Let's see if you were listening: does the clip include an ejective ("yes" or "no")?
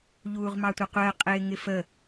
yes